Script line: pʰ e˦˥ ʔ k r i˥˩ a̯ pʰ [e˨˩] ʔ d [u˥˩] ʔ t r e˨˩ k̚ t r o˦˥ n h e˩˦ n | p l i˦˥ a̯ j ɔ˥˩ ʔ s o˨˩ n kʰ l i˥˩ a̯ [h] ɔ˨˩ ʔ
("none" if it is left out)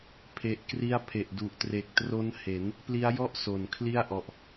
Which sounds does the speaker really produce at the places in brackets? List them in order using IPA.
e˨˩, u˨˩, ʔ

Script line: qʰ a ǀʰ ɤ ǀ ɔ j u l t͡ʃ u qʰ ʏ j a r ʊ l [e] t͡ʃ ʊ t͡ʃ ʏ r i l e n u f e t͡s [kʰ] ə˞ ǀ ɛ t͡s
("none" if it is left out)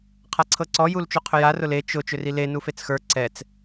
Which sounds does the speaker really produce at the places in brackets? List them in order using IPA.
e, x

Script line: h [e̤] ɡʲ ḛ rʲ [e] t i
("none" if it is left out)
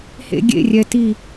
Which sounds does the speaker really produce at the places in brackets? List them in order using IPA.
ḛ, ɛ

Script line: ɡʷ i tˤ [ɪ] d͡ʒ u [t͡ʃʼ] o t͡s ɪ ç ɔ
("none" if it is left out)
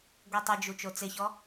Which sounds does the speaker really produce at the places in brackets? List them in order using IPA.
ɪ, t͡ʃ

